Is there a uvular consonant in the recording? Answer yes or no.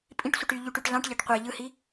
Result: yes